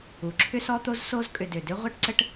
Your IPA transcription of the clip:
u˩ ǁʰ ʏ˥ s ɔ˥ t̪ o˥ z s o˦ z kʼ ʏ˨ d ʏ˩ d ʏ˥ ʁʷ e˥ ʈ ǀ ə˥ ʈ

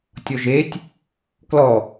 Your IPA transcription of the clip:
tʲ ɔ ʒ e tʲ | k l ɔ

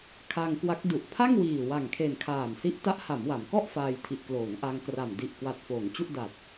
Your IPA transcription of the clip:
kʰ a˧ ŋ k w a˦˥ k̚ d u˨˩ ʔ pʰ a˥˩ ŋ w iː˨˩ w a˨˩ ŋ kʰ e˨˩ n kʰ aː˨˩ m s i˦˥ ʔ t a˦˥ ʔ h a˩˦ m w a˩˦ m k ɔ˥˩ ʔ f aː˧ j tʰ i˨˩ ʔ k l oː˩˦ ŋ ʔ a˧ ŋ k r a˨˩ m d i˨˩ ʔ k w a˨˩ t̚ f oː˩˦ ŋ t͡ɕ u˥˩ ʔ d a˨˩ t̚

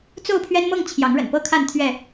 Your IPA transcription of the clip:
t͡s o˥˨ ʊ̯ pʰ ɥ ɛ˦ n m ɤ˥˨ ŋ t͡ɕʰ j ɑ˨˦ ŋ ɻ ə̰˨˩ n p ɤ˦ kʰ a˥˨ n t̪ʰ ɥ ɛ˥˨

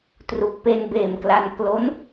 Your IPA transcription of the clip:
t r u˨˩ k̚ p e˧ n b eː˨˩ m k l a˧ n k l o˦˥ n

